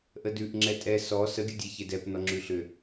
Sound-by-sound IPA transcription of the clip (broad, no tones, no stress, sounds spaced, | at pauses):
ʔ ə d ʉ ʔ ŋ͡ǁ ɛ tʼ ɛ s ɔ s ə ɡʲ ə dʲ e ç e d ɛ p n ɔ ŋ͡ǁ ʉ ɬ ʏ